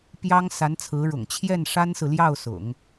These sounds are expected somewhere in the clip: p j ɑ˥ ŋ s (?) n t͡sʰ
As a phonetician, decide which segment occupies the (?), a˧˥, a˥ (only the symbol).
a˧˥